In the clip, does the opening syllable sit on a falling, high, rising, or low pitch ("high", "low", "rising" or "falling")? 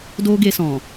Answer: high